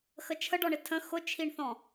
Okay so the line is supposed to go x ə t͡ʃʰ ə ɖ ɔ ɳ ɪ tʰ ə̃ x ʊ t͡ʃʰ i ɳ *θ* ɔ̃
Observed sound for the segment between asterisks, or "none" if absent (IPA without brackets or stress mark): θ